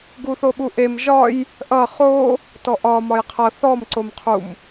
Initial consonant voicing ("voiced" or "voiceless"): voiced